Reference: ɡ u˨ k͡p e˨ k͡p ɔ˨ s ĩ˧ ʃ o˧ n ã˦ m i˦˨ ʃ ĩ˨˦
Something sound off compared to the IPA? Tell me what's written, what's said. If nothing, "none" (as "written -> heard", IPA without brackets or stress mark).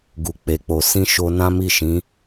ɔ˨ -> o˨